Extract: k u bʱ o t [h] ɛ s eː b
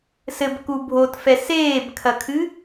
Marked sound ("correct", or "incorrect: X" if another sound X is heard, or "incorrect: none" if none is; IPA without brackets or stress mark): incorrect: f